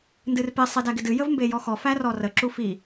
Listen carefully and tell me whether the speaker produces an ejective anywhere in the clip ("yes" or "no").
no